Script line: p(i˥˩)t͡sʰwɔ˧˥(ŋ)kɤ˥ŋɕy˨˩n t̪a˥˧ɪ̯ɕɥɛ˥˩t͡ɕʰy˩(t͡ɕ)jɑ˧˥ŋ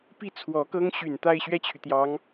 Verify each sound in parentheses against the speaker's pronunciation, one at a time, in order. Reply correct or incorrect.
correct, incorrect, incorrect

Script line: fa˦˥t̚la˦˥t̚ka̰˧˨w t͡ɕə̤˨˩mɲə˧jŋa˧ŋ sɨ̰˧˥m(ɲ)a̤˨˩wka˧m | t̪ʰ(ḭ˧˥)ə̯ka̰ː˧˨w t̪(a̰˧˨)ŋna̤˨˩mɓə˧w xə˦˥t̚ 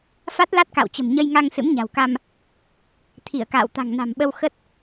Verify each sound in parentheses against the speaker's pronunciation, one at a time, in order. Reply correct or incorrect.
correct, incorrect, incorrect

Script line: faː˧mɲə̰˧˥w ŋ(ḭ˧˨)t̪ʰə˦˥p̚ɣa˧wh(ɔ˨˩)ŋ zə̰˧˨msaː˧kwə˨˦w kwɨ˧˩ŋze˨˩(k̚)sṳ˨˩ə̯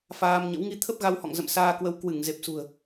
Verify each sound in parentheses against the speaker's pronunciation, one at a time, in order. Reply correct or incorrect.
incorrect, incorrect, incorrect

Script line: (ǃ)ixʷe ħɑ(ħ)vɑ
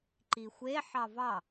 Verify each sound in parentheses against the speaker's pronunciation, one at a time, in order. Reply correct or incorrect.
correct, incorrect

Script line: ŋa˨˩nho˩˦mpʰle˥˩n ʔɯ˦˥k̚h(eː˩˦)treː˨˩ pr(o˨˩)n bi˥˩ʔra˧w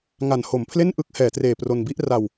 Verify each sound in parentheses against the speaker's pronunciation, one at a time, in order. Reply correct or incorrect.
incorrect, incorrect

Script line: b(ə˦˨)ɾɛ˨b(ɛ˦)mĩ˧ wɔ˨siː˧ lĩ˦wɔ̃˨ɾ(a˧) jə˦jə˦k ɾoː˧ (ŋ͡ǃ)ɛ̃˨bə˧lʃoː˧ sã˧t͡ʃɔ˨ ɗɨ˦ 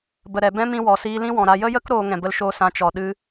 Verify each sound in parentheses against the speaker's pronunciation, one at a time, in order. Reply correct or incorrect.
incorrect, incorrect, correct, incorrect

